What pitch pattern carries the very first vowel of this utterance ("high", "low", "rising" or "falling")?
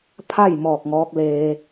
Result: falling